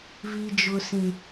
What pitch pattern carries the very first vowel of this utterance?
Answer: low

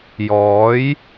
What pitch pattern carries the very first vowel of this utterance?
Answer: rising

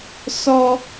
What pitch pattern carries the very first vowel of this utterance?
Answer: high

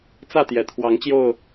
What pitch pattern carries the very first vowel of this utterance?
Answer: falling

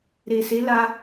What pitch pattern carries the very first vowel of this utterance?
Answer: low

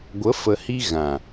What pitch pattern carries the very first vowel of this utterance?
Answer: rising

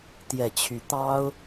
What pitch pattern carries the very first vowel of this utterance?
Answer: low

